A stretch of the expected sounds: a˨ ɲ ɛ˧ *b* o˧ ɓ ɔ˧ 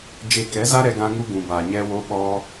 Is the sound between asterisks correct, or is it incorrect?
incorrect